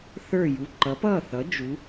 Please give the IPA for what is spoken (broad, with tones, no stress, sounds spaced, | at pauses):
θ ə˞˥˩ j u˩˧˩ ǃ ʌ˩˥ p ʌː˥˩ θ ʌ˩˥ d͡ʒ u˩˧